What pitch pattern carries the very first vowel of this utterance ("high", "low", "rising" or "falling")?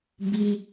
high